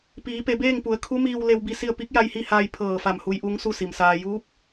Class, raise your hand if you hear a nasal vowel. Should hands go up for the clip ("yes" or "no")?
no